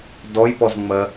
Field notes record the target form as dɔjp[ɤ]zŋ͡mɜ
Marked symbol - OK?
no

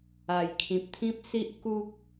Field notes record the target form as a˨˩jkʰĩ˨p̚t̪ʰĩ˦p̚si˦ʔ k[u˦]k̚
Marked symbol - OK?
yes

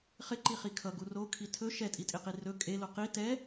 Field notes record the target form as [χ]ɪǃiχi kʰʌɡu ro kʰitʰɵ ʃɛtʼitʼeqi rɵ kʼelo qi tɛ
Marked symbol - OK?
yes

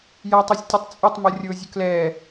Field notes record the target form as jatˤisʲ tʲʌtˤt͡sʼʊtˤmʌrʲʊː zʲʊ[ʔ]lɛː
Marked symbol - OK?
no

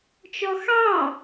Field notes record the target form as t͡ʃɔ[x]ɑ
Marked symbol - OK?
yes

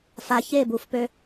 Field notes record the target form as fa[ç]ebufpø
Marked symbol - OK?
yes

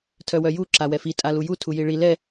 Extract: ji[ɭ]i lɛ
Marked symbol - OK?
yes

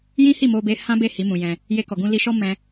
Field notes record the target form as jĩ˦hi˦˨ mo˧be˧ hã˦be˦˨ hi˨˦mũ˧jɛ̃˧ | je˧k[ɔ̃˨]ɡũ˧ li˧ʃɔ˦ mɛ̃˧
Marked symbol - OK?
no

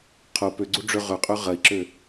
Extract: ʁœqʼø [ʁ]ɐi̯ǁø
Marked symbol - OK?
yes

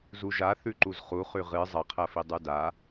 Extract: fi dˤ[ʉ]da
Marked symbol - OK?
yes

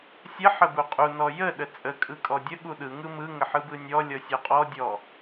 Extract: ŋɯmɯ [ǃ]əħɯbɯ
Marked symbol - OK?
no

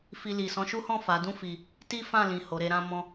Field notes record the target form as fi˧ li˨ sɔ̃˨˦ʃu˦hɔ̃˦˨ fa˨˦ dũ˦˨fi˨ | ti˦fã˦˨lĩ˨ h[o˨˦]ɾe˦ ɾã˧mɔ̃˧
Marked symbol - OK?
yes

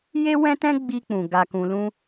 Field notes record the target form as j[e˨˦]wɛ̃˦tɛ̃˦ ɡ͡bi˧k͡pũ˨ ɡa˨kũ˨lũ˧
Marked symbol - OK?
no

